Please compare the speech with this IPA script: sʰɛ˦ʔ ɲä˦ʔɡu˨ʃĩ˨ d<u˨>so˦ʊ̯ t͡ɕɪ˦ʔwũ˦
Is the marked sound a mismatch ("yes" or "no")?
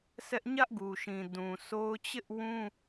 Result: yes